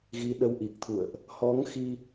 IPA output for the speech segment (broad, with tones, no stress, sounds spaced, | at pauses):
ɣ i˨˦ ɗ ə˨˦ w ʔ i˨˩ k̚ t̪ʰ ṵ˧˨ ə̯ ʔ | h ɔ˨˦ ŋ x i˧